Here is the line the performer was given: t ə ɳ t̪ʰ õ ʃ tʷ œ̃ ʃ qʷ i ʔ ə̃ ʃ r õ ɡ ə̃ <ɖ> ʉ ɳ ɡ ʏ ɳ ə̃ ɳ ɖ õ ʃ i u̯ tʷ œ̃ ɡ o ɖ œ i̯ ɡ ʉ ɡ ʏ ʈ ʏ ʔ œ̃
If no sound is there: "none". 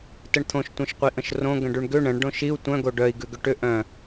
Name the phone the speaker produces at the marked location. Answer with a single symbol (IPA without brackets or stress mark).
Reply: ɖ